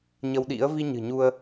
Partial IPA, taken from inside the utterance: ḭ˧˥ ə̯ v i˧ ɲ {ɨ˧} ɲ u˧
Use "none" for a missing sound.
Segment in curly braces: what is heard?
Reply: ɨ̤˨˩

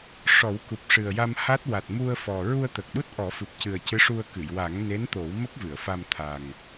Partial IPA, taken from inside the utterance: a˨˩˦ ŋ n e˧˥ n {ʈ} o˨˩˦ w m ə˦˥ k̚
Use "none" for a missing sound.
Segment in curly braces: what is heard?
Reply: t̪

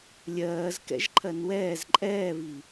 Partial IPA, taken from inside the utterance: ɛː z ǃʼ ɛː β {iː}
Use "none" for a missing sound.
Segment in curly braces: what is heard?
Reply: i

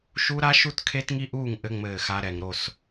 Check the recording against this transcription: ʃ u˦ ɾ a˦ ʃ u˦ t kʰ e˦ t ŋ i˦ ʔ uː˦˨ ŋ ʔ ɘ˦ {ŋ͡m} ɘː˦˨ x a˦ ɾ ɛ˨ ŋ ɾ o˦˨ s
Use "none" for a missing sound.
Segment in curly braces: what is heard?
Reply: ŋ͡m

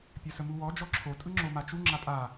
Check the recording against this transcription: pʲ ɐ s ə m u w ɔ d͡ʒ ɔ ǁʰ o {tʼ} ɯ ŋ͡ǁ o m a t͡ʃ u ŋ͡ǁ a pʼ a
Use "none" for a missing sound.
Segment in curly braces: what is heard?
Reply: tʼ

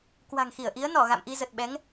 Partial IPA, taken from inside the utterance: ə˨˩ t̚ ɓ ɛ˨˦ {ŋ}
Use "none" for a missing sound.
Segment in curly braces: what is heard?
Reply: ŋ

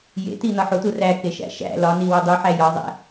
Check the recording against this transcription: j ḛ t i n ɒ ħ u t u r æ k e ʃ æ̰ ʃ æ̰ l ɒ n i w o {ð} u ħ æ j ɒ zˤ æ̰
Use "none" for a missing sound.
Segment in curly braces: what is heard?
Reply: dˤ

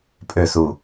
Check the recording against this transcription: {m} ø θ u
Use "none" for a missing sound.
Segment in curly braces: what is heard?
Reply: pʼ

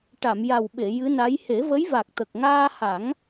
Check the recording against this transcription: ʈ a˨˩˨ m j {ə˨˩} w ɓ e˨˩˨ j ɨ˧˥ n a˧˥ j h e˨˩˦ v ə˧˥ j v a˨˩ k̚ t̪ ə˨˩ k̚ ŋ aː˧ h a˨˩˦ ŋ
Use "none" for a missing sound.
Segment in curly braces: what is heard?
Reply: a˨˩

